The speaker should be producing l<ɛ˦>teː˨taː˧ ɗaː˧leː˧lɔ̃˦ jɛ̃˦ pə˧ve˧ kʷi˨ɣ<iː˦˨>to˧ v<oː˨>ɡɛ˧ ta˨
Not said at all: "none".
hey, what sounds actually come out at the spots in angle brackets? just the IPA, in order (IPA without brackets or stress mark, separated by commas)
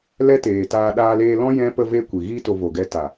ɛ˦, iː˦, o˨